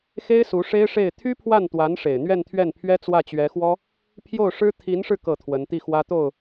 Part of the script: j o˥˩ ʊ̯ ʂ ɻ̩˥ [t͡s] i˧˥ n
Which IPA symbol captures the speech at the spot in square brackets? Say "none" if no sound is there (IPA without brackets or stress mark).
t̪ʰ